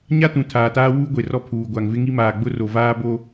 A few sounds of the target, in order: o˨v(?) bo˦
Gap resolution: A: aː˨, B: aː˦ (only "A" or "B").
B